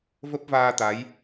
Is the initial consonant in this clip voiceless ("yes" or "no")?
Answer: no